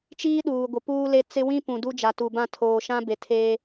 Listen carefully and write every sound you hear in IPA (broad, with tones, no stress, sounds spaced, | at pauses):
t͡ʃ iː˦ ɗ uː˨ ɡʷ ɪ˨ p uː˦ l e˦ t͡s ɪ˦ w ĩ˦ p ũ˨ d u˦ d͡ʒ a˨ t u˨ b ã˦˨ tʰ oː˨ ʃ ã˦ b e˨ tʰ eː˦